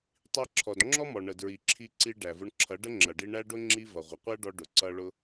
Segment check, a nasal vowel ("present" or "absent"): absent